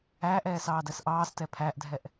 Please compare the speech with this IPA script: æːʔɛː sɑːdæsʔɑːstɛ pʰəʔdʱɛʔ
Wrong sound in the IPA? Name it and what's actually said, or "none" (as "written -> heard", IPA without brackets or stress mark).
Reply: ə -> æ